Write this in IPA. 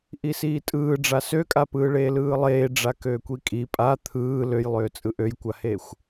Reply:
ʔ i s iː tʼ ɯː ɖ͡ʐ a s ø kʼ a p ɯː ɭ eː l ɯː lˠ eː ɖ͡ʐ a k øː kʷ i kʼ i pʼ a t̪ʰ ɯː l ø j lˠ øː t͡sʼ ɯ ʔ ø j kʷ a h eː xʷ

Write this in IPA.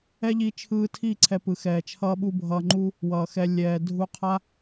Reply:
ɛ˦ ʎ i˧ t͡ʃʰ ɯː˧ tʰ i˦˨ ǀʰ ɛ˧ p ɯ˨ x ɛː˨ t͡ʃʰ ʌː˦ ɓ u˦ bʱ ʌː˧ ŋ͡ǃ u˦ | w ʌː˨ x ɛ˧ lʲ ɛː˨ dʱ u˧ qʰ a˦

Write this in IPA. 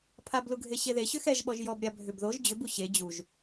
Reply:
pʰ a b l u ɡʱ e ɕ e ð e ɕ ʏ x ɛ ʒ ɓ ɔ ʒ j ɔ b ɾʲ a bʱ ʏ b ð o ʒ d͡ʑ ʏ b u ɕ e d͡ʑ u ʒ

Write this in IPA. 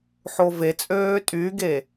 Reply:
ħ o v e t͡sʼ øː tʼ y ɡ e

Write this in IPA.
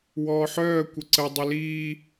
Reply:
w ɔː ħ œː kʷ ə ǀ ə dˤ ə l iː

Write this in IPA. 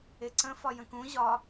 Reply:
e ǀ ə̃ f ɒ j ə̃ k ũ ʑ ɒ

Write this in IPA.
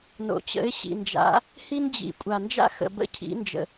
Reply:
n o̰˨ t͡ɕ ə̰˨˥ ɪ̯ ɕ ḭ˨ n d͡ʒ a̰˨˥ | h i˥ n d͡ʑ ḭ˨ kʷʼ a˨ n d͡ʒ a̰˥ x ə̰˨ b ə̰˥ cʰ ḭ˨˥ n d͡ʒ ə̰˨

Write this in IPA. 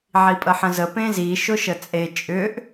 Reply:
ʕ i pʼ ə ħ ə̃ z ə p ẽ z i ʃ ʊ ʃ ə t͡sʼ e t͡ʃʼ ʏ ʔ

